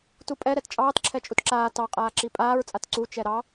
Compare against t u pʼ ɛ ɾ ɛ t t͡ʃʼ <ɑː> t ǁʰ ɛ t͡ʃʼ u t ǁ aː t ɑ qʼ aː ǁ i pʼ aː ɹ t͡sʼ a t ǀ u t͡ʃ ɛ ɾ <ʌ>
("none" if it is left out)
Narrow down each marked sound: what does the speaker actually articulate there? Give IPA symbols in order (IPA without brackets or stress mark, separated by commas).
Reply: ɑː, ɑ